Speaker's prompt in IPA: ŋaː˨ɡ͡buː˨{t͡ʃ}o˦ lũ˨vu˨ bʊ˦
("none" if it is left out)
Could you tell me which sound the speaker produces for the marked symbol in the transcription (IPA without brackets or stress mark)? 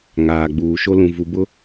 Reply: ʃ